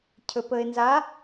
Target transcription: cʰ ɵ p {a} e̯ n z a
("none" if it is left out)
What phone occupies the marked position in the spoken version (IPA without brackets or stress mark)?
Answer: ə